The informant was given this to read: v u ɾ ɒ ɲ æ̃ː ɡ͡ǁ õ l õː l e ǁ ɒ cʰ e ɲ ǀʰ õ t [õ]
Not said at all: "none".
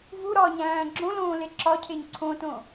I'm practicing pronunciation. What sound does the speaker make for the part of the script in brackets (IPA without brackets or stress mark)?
õ